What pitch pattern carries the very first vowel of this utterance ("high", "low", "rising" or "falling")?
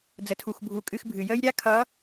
low